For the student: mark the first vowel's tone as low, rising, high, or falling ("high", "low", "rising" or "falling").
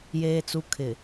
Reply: low